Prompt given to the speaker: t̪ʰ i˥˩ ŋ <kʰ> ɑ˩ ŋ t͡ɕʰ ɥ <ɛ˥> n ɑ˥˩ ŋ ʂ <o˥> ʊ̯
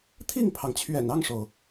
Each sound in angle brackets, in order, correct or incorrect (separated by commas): incorrect, incorrect, incorrect